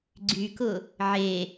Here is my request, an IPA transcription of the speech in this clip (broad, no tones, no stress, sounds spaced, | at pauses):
ɡ͡ǀ y k ʊ | ʕ e